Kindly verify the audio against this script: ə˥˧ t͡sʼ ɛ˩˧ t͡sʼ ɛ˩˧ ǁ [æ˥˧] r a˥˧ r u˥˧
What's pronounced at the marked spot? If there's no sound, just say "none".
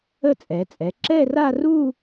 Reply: ɛ˥˧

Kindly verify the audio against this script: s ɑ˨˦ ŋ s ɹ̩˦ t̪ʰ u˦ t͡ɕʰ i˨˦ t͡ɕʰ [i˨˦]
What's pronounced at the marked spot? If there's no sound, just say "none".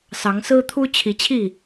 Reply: i˥˨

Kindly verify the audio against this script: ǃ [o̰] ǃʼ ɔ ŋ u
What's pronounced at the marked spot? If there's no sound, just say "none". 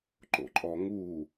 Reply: o̰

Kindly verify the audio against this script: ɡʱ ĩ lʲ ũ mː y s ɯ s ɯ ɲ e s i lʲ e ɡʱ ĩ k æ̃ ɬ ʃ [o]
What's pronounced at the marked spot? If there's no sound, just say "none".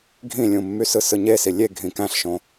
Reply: õ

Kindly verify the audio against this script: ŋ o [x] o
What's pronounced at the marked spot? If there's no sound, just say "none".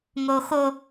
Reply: x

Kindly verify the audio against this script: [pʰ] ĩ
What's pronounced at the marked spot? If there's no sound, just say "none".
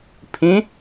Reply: pʰ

